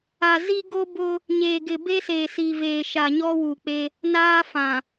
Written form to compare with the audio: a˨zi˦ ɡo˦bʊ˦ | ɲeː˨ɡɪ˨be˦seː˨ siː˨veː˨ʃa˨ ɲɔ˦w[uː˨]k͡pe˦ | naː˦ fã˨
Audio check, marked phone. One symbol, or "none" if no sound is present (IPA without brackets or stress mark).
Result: uː˨